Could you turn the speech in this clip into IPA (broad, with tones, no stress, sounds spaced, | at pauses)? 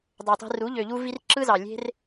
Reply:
dˤ ø˨ tˤ i̤˧ r u˨˦ ʎ ø˨ ʎ u˧ v i˧ r ǁ ɯ˦ z ɑ˨ lʲ e̤˦ r